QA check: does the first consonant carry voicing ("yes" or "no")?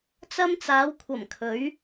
no